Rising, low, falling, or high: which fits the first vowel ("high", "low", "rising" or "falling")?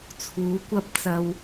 rising